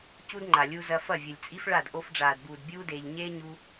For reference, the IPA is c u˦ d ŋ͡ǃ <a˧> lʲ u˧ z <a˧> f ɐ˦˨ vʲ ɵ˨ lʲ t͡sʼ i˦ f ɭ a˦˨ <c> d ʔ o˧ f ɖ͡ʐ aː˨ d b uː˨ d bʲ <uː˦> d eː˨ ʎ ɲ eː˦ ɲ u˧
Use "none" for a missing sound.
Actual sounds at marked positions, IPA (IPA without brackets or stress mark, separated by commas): a˨, ɐ˧, none, uː˦